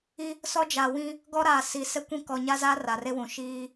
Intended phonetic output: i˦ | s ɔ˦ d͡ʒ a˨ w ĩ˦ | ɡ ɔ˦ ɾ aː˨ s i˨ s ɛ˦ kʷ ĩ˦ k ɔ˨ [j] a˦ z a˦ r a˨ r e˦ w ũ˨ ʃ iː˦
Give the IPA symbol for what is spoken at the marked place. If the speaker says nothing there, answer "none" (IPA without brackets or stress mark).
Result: ɲ